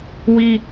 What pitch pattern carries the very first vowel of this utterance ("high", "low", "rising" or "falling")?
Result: high